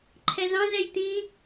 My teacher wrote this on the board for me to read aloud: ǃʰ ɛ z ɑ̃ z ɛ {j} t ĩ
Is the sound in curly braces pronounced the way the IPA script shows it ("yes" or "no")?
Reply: yes